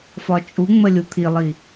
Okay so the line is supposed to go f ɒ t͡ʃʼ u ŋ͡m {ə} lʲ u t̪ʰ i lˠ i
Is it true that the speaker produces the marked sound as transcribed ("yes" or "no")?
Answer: yes